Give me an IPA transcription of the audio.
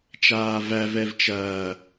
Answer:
t͡ʃ aː v æ v ɛ v t͡ʃ ɐː

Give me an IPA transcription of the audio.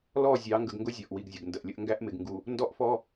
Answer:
l ɔ˦˨ zʲ ɑ˨˦ ŋ ɡ ə˨ ɡ ŋ ɡ ʊ˦ zʲ ɔ˨ ʔ w i˨ ɡ zʲ ə˨ ɡ n d ə˨ ʔ lʲ ə˦ ʔ ŋ ɡ æ˦ ʔ m ɪ˨ ɡ ŋ ɡ u˨ | n d ɔ˦ ʔ f ɔ˦

